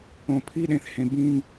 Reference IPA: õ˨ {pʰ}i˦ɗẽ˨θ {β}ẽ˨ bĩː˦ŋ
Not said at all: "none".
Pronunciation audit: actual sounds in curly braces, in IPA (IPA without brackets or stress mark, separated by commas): pʰ, h